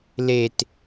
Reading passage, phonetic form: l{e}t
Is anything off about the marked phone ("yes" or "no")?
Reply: no